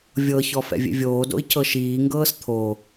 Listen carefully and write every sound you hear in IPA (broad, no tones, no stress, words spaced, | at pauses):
vʲɤçɔ fɛ̰vʲḛvʲoːdo̰i̯ cʰɤʃiːŋɡɤːs t̪ʰo